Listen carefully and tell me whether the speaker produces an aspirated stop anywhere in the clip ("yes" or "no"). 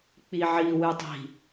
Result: no